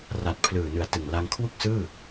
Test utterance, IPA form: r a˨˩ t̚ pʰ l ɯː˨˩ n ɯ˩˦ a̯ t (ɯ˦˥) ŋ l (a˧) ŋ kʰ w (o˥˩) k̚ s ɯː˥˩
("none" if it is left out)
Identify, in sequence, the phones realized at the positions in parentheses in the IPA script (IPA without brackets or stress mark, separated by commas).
ɯ˨˩, a˧, u˥˩